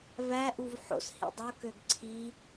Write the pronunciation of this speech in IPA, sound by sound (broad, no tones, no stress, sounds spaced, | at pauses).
v æ ʔ u v ħ o̰ s h ḭ dˤ o k ø ɡ ǀʰ i